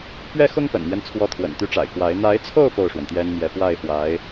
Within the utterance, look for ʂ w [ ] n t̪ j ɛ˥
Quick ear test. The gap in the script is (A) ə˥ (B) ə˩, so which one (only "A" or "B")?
B